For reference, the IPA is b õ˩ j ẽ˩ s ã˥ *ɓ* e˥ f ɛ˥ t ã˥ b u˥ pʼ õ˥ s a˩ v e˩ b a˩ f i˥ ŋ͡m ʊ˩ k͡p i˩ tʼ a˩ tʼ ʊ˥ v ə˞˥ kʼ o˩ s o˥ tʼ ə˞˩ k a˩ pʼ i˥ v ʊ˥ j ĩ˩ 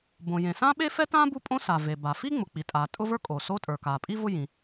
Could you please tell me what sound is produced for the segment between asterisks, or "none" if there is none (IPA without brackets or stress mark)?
ɓ